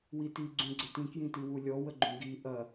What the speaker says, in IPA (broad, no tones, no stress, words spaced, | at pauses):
witi ɡ͡ǀũɡ͡ǀətĩ kjĩtiwulʲɔ wəɡ͡ǃũɡi ʔɐ